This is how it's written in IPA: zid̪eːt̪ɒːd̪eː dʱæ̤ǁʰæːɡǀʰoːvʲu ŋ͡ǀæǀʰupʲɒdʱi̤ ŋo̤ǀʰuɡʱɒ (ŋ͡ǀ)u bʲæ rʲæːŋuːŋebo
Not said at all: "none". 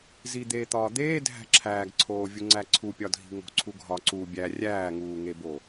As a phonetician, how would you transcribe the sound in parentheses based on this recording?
ǀ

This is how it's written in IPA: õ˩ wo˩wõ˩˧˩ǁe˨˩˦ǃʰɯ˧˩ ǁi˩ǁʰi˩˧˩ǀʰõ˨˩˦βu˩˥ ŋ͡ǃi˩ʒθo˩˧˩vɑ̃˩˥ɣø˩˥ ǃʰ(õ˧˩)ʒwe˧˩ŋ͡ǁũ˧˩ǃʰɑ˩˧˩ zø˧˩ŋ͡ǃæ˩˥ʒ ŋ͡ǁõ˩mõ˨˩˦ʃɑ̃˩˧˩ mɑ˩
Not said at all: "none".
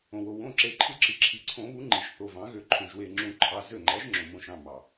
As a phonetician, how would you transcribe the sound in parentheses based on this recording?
õ˩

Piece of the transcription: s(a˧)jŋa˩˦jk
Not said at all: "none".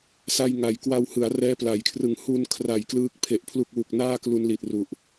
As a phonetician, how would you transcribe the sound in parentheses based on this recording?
a˧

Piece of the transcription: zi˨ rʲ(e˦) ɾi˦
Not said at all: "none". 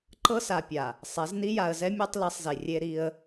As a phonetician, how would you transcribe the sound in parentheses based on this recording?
e˦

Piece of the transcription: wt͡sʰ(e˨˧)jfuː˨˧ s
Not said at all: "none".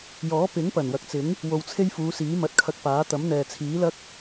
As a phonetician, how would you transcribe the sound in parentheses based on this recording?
e˥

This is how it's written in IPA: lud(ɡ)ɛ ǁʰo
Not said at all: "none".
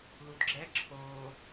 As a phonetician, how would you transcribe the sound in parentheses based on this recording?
ɡ͡ǁ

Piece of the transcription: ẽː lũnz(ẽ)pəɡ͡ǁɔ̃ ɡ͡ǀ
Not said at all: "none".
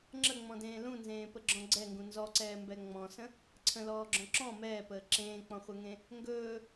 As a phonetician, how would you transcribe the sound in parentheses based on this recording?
ẽː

